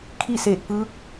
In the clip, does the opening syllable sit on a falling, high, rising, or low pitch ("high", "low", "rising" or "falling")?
falling